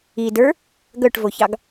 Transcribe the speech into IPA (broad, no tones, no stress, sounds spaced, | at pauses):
i d ə˞ | ɡ œ ʈ v o ç ɑ ɡ